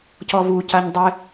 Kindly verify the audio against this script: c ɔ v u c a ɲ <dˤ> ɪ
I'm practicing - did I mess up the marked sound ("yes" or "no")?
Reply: no